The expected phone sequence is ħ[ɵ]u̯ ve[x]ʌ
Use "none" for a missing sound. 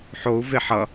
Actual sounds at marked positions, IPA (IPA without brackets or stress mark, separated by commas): o, ħ